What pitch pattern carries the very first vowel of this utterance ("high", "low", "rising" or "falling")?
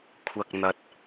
low